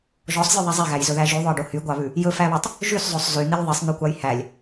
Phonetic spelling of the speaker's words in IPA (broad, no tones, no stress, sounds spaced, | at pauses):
ʒ ɔ sˤ zʲ ʉ ðˤ ɛ zˤ e ɣ æ j z ɵ ð æ ʒ y ðˤ ɵ e̯ ɖ o h y ɡʷ ɑ β ʉ | j ɵ f æ β ɑ tˤ | ʒ y s zˤ o sˤ z y n̪ i lʲ ðˤ i sˤ n̪ ʉ kʷ ɑ j h æ lʲ